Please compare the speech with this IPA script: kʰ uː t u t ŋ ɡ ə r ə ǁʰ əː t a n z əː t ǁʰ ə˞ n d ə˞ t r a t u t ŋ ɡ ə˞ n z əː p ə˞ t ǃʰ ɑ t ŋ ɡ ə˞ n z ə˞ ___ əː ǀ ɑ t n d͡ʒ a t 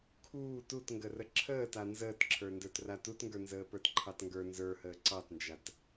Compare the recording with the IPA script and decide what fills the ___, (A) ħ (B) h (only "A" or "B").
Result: B